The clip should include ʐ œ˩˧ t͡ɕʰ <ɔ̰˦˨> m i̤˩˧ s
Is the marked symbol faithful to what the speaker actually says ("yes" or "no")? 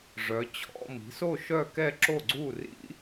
yes